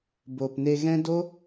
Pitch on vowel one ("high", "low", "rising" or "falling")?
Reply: low